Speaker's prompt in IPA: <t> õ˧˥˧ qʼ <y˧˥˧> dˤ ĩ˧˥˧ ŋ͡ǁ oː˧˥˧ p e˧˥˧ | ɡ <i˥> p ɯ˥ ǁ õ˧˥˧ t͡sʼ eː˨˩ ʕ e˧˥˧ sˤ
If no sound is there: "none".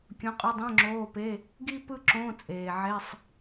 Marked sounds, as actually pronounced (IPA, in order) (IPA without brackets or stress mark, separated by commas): kʲ, y˧˥˧, i˥